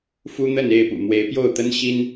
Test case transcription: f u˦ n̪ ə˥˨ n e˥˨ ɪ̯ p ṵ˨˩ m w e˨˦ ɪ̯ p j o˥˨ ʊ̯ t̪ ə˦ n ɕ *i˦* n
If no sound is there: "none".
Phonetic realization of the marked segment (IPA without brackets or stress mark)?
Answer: i˦